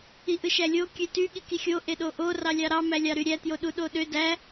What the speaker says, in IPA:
iʔɯʃælʲo kʲøty ɠikixʲo ʔeɗoʔo rɑlʲɑɾɑ mælʲɑɾyɾʲæ tjoɗuɗoɗø dæ

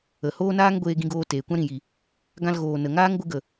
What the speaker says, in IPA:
ə˨ hoː˦naː˦ŋ ɡʷeː˧ɡĩ˧ɡoː˧ teː˨ kʷã˦ɾĩ˨ji˨ | ɡã˧lɣoː˨ nə˨ ŋaː˦ŋɡʷɨ˧ɡə˨

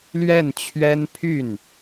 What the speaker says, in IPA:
lɥɛ˥˩nt͡ɕʰɥɛ˥n pʰy˥˩n

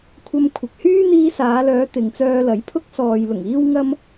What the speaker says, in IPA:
kʷʰɐ˧mkʷʰɪ˨k̚hyː˥ n̪iː˧saː˨˧lœː˨˧ t̪ɪ˨ŋt͡sœː˧lɐ˨˥jpʰʊ˥k̚ sɔː˨jlʊ˨˩ŋ iː˥wŋɐ˥m

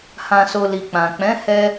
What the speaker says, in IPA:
hã˨so˨ li˨ k͡pã˨ k͡pɛ̃˨˦ hɛ˦

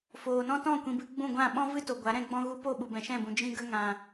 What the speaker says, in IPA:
foː˨nɔ̃˦ tɔ̃˦˨kʷĩ˨bɨ˧ ɡ͡bũ˦˨ ɡʷã˦˨ ɓɔ̃˦vɨ˦ to˨ɡʷa˨˦ ɾɛ̃˧ɡ͡bɔ̃˦ ɣu˧po˦˨ ɓu˨bɛ̃˨ʃɛ̃˦˨bũ˨ d͡ʒĩ˧ɡə˧ ŋã˨

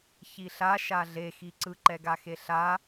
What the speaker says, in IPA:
çiɬa ʃaɮe xiǀɯ ǃɛɡaxeɬa

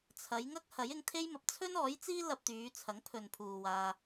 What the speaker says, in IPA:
t͡sʰɐ˨˧j ŋɐ˥k̚ hɐ˨˥jɪ˧ŋt̪ʰe˥jmɐ˨p̚ t͡sʰɵ˥nɔː˨˥jt͡siː˥ lɐ˧p̚t̪yː˨˧t͡sʰɐ˨˥ŋ pʰɵ˨npʰuː˨waː˧

